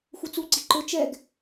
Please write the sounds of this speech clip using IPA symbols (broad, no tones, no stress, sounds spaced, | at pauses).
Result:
x u t͡s u ɡ͡ǀ i ǃ ʊ t͡ʃ ɛ ɡ